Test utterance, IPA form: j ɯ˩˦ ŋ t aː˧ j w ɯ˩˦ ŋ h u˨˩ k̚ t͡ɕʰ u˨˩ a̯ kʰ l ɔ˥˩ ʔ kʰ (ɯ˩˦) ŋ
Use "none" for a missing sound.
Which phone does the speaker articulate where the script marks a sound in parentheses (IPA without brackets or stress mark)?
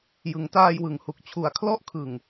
ɯ˨˩